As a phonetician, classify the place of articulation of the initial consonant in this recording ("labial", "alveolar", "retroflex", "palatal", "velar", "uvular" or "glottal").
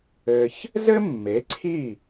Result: palatal